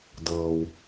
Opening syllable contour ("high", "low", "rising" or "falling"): high